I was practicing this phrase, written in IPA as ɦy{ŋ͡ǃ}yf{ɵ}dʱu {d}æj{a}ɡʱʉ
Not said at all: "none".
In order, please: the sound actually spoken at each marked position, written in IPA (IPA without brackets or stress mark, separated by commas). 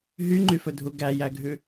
ŋ͡ǃ, ɵ, ɡ, æ